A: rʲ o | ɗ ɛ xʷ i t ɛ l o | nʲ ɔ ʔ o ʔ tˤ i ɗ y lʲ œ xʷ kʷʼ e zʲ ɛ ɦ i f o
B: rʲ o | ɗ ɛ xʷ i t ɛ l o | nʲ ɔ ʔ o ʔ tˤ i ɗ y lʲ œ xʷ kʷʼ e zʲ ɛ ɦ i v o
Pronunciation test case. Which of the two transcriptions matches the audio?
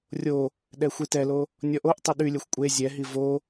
B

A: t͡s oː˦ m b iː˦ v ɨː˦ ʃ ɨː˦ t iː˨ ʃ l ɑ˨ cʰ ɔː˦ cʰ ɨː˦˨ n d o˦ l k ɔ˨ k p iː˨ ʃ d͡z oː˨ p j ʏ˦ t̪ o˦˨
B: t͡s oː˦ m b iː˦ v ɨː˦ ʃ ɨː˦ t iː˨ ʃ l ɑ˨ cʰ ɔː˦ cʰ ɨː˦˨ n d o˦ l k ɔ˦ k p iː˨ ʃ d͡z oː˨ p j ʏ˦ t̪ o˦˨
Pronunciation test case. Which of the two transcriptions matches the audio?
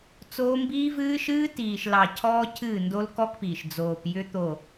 B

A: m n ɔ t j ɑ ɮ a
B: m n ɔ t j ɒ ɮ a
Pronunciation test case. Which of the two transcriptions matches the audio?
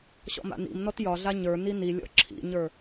B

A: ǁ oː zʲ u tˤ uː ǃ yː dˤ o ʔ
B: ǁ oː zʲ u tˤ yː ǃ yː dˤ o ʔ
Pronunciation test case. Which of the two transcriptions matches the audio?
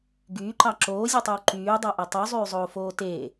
A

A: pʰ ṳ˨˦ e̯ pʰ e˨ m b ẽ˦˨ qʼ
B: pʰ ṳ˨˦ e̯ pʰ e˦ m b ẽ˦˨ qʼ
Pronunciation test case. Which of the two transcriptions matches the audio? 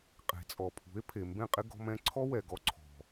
A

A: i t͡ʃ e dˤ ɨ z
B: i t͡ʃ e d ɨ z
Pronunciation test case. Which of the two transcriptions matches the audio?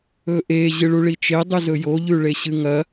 A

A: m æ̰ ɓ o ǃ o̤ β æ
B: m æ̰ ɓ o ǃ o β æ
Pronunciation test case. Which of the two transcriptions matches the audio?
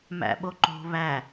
A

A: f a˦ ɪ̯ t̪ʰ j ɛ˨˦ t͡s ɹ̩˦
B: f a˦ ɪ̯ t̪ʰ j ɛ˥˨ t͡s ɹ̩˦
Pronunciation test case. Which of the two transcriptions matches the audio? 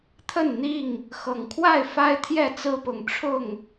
B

